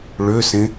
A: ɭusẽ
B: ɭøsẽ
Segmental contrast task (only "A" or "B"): B